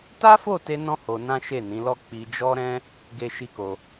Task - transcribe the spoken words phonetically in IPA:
t a˦ f o˦˨ t e˧ n ɔ̃˦ h o˧ n ã˦ ʃ e˦˨ n ĩ˨˦ l ɔ˦ k͡p i˧ d͡ʒ ɔ˦ ɾ ɛ̃˦ | ɡ e˦ ʃ i˦ k o˧

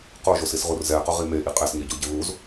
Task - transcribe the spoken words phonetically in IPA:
q o ʒ o s i s ʁ u r z ɛ q ʊ ʁ i m e ʔ i qʼ ɛ s ɲ e ɟ o ɟ ɪ β u z

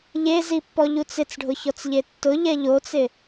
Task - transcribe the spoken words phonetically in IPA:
ʎ e z i pː ɔ ʎ u t͡s ɪ t͡s ɖʱ ʊ ç ɔ t͡s ʎ e tː ʊ ʎ ɛ ʎ o t͡s ɪ

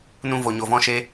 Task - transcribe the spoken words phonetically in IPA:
n ũ˧ v o˨ ɲ o˨ v ɔ̃˧ ʃ e˧

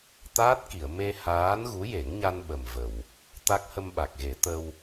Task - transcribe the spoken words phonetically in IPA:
t̪ aː˦˥ t̚ k i˨˩˨ ə̯ m e˧ h aː˧˥ n ɣ u˧˥ j e˨˩˦ ŋ ɲ a˧ n ɓ ə˨˩ m v ə˨˩˨ w | t̪ a˦˥ k̚ h ə˧ m ɓ a˨˩ k̚ ɣ e˨˩˦ t̪ ə˧ w

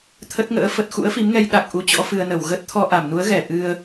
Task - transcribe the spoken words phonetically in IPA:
t̪ʰ ə˦˥ t̚ ŋ ə̰ː˧˥ f ə˨˩ t̚ x ṵ˧˥ ə̯ f i˨˦ m ŋ ɛ˧ j ɗ a˨˩ k̚ ʔ u˨˦ t͡ɕ ɔ̰˧˥ f ɨ˧ ə̯ n ə˧˩ w ɣ ə˦˥ t̚ t̪ʰ ɔ˧ ʔ a˧˩ m n u˨˦ ə̯ ɣ ɛ˧˩ ʔ ɨ˧ ə̯

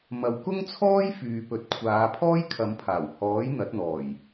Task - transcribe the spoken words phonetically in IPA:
m ɐ˨˧ w k ʊ˥ ŋ t͡sʰ ɔː˥ j f yː˨ p ɵ˨˥ t̚ kʷʰ aː˨˧ pʰ ɔː˥ j kʰ ɐ˨˧ m pʰ aː˨˩ w h ɔː˨˥ j n̪ ɐ˨˥ t̚ n̪ ɔː˨˩ j

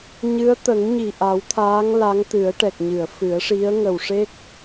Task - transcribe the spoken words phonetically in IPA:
ɲ ɨ˧˥ ə̯ t̪ ə˨˩˦ ŋ ɲ i˨˩ ʔ a˨˩˦ w t̪ʰ aː˧˥ ŋ l a˧˥ ŋ t̪ ɨ˨˩˦ ə̯ ʈ ɛ˨˩ k̚ ɲ ɨ˨˩˨ ə̯ f ɨ˨˩˦ ə̯ ʂ i˧˥ ə̯ ŋ ə˨˩ w ʂ e˦˥ k̚

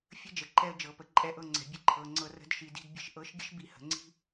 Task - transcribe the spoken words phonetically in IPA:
fʲ ə˥ d͡ʒ ə˩˧ ǃ ɛ˧ ə̯ d͡ʒ ɤ˩˧ p ə˩˧ ǃʼ ɛ˧ ʔ ɤ˧ ŋ͡ǀ ɛ̤˩˧ bʲ ə˨˥ ǃʰ ɤ˩˧ ŋ͡ǀ ɤ˧ r ə̤˧ d ʃ i˩˧ d i̤˧ d bʲ ə̤˨˥ ʃ ʔ ɤ˨˥ ʃ ɡʲ ə˥ ʃ b i˨˥ h ə̤˩˧ ŋ͡ǀ i̤˥

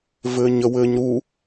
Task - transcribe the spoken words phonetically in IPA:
v ɘː ɲ ə w ɘː ɲ ɾ u

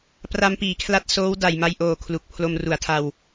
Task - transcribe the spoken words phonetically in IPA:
p r a˧ m p iː˩˦ kʰ l a˦˥ t̚ s oː˦˥ w d a˨˩ j m a˧ j ʔ oː˨˩ kʰ l u˨˩ k̚ pʰ l o˧ m r u˩˦ a̯ tʰ a˧ w

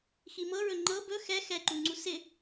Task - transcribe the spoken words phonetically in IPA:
x i m ɤ ɹ ɵ ŋ͡ǃ ɤ b ɵ x ɛ x ɛ ǃ u ŋ͡ǀ u s ɪ

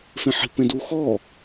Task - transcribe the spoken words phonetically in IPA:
f ẽ ħ i̤ p ẽ d u x ɔ

